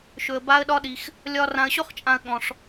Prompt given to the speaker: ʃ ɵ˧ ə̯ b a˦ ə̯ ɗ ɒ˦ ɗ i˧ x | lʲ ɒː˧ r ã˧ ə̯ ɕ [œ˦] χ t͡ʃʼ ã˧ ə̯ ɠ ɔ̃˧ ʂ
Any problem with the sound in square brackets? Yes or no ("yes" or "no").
yes